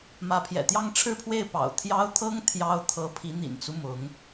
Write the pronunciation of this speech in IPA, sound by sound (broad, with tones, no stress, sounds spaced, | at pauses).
m ä˧˥ pʰ j ɛ̰˨˩ t̪ j ɑ˥˧ ŋ ʈ͡ʂʰ ɻ̩˥˧ pʰ w e˥˩ ɪ̯ p ɑ̰˨˩ ʊ̯ t̪ʰ j ɑ˥ ʊ̯ t̪ʰ ɤ˥ ŋ t̪ʰ j ɑ˥ ʊ̯ t̪ʰ ɤ˧˥ pʰ i˧˥ n̪ ḭ˨˩ n t͡s u˦ m ʊ˧˥ ŋ